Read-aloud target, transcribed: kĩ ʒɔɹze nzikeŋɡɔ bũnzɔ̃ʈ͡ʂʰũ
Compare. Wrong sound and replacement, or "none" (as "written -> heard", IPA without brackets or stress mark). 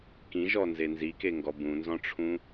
ɹ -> n